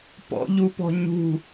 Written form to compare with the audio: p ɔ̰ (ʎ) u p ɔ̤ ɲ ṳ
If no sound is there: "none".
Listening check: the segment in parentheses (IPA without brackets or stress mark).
ʎ